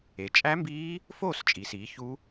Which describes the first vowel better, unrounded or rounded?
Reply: unrounded